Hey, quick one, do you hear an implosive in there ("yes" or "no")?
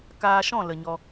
no